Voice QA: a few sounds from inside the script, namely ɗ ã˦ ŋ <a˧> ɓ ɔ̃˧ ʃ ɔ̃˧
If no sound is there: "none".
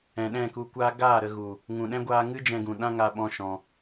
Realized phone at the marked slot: a˧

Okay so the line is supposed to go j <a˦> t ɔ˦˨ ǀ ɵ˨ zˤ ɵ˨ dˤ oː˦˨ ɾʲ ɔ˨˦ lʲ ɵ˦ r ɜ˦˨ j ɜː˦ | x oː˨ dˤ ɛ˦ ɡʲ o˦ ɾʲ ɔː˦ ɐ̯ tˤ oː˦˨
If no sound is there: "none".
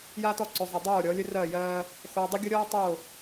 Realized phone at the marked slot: a˦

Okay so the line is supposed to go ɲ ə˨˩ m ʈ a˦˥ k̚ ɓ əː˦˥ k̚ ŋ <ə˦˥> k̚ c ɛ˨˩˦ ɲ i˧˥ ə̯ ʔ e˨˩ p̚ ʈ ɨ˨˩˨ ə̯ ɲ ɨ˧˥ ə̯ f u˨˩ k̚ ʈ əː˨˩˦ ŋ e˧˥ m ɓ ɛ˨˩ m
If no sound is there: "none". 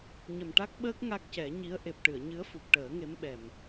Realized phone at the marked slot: a˦˥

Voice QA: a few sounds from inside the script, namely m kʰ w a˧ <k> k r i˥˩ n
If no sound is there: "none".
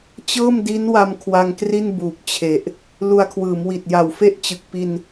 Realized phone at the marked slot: ŋ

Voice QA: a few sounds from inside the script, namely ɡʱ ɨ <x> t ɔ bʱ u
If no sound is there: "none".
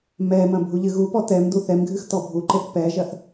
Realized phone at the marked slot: x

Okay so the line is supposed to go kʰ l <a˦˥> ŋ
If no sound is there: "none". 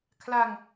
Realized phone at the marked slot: a˧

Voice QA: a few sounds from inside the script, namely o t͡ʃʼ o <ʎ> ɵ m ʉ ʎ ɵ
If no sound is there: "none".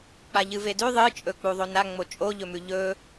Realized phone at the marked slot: ʎ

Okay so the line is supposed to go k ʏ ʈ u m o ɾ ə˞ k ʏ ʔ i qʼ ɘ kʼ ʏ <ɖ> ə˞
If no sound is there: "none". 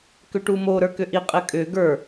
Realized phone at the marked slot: ɡ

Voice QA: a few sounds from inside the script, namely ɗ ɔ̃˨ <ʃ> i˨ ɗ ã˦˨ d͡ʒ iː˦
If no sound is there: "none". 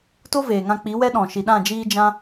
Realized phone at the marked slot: ʃ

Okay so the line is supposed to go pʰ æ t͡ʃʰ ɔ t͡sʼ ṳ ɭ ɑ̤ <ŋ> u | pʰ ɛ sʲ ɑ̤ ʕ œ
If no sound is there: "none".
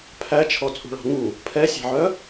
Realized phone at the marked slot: ŋ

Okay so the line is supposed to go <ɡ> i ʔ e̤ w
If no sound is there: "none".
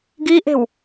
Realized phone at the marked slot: ɡ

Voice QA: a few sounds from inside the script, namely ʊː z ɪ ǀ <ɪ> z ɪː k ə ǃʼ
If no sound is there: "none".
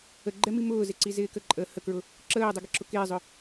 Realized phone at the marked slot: i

